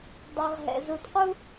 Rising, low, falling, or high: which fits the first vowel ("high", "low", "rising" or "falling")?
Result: low